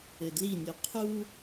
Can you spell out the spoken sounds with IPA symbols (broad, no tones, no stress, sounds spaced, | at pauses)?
ɘ d l i nʲ u qʰ u